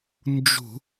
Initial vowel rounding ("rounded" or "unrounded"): rounded